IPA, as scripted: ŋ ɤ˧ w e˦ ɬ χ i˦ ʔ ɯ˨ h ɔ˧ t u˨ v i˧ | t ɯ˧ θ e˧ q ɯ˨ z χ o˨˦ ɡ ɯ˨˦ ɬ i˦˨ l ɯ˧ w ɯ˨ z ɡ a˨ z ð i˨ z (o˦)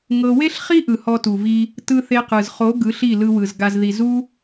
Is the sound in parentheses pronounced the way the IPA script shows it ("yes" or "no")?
no